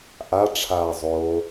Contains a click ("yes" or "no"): no